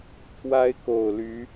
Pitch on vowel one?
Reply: high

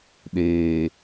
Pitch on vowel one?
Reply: low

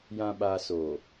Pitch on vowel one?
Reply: low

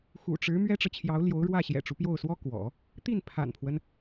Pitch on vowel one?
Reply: low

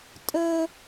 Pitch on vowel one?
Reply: high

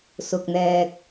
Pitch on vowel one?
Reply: low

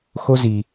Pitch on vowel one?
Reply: high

